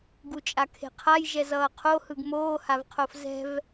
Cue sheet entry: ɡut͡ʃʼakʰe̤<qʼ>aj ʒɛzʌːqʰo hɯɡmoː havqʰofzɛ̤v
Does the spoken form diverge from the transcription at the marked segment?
yes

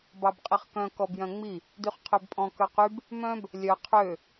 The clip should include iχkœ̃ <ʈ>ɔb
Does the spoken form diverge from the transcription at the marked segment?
yes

